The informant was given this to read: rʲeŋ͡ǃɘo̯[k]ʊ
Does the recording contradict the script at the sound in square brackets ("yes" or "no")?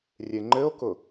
no